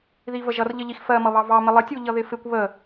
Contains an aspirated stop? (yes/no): no